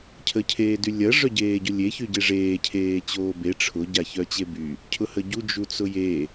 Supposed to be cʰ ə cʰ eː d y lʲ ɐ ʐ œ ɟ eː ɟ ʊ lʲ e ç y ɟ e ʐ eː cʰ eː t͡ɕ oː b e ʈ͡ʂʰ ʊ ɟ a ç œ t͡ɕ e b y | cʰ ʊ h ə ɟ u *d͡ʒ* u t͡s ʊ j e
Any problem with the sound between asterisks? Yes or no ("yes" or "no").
no